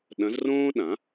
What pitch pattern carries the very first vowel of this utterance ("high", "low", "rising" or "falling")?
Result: rising